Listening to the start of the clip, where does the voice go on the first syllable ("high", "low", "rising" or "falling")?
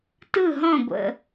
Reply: falling